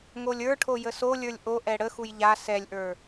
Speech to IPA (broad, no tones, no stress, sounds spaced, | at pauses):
ŋ o lʲ ə˞ ʈʰ o j ə s o lʲ ə˞ lʲ ʔ o ʔ ɛ ɽ ə x u j ʎ a s ɛ lʲ ʔ ə˞